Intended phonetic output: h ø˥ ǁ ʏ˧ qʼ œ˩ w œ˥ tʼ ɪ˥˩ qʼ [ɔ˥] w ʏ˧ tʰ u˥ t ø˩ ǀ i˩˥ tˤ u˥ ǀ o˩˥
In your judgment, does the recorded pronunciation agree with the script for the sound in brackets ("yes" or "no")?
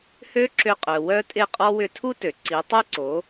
yes